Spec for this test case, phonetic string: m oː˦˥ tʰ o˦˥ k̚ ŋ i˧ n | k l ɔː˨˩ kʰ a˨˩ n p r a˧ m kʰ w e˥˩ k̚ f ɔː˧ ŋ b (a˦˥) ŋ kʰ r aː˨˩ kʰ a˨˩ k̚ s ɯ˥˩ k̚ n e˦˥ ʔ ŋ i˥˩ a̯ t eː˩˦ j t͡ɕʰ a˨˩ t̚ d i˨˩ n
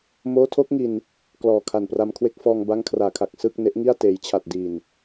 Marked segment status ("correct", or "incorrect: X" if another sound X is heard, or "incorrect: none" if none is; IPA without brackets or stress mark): correct